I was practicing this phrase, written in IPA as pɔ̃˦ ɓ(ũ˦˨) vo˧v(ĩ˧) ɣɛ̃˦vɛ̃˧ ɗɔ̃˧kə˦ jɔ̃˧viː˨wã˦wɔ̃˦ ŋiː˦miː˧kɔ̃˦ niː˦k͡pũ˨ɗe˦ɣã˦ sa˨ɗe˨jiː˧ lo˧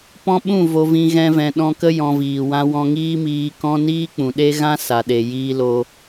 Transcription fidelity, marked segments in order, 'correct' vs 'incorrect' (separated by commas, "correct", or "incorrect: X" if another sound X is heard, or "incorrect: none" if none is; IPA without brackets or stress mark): correct, correct